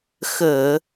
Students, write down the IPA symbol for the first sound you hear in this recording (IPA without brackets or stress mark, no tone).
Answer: x